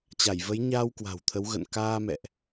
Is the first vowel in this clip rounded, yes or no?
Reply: no